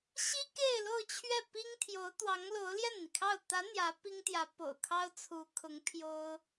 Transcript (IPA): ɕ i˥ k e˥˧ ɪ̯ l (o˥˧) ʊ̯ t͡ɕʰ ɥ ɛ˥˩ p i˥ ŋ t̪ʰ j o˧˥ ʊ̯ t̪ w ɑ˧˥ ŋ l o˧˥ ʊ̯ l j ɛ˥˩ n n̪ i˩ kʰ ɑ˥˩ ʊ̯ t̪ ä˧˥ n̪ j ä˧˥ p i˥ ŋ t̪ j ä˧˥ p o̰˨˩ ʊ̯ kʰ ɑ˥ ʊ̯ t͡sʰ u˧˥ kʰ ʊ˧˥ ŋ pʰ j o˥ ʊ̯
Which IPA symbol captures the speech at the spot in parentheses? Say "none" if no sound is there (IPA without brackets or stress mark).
o˥˧